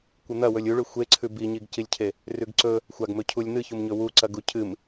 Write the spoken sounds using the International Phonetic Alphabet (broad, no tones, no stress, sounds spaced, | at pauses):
kʷ ɨ n̪ ɐ w ɵ lʲ u ɭ ʉ xʷ e ǀʰ ʉ b i ɲ i ɡ c i lʲ cʰ e | r ʉ ɡ ǀ ɵ | xʷ a ɡ m ɵ cʰ u lʲ n̪ ɨ ç u m ɲ ɵ w u ǀ ɐ ɡ u cʰ ɨ m